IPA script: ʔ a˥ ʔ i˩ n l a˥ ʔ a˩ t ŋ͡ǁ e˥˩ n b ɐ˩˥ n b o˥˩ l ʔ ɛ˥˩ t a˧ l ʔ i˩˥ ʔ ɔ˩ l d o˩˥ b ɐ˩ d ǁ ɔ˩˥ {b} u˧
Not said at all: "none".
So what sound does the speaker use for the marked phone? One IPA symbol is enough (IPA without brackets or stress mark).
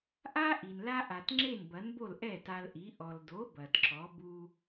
b